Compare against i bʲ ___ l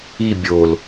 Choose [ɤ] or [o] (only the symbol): o